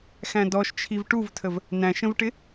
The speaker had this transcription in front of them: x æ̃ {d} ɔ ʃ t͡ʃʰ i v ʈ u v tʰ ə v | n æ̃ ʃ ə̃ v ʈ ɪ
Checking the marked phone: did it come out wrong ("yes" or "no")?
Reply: no